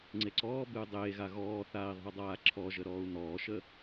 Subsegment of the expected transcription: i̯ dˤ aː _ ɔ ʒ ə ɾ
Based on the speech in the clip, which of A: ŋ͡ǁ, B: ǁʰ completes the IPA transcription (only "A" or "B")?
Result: B